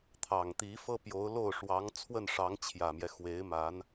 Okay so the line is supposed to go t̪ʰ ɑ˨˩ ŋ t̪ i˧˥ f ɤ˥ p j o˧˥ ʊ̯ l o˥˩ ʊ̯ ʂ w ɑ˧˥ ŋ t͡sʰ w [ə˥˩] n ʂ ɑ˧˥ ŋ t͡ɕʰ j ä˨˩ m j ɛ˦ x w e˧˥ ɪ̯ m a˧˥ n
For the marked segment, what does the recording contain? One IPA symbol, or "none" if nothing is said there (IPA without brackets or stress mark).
ə˥˩